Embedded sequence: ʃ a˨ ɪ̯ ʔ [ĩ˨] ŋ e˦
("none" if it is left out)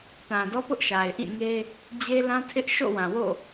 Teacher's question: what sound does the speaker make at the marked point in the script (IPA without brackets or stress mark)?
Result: ĩ˦˨